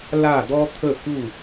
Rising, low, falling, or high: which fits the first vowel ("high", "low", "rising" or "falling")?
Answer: falling